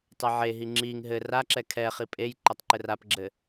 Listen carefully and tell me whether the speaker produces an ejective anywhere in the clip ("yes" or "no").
yes